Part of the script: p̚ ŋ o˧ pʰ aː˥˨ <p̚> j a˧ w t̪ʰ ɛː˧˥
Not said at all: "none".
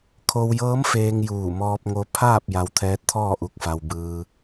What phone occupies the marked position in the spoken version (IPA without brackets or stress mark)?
p̚